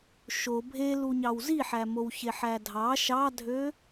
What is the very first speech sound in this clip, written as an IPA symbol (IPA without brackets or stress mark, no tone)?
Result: ʃ